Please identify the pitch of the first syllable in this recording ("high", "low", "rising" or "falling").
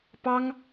high